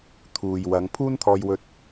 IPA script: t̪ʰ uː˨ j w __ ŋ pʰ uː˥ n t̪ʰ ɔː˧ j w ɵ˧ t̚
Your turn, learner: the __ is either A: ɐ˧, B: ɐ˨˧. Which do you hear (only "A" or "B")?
B